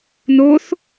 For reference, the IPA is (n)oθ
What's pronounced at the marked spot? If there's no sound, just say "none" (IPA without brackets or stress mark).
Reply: n